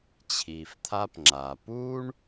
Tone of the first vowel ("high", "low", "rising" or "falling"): low